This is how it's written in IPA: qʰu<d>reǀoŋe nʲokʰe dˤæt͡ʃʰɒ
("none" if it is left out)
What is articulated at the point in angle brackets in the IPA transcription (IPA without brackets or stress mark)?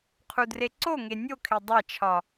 d